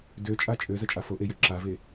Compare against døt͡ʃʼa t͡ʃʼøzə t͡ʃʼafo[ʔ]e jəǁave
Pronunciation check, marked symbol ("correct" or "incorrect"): correct